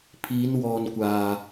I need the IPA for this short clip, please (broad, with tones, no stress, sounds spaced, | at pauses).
pʰ iː˨˧ n w ɔː˨ n kʷ aː˨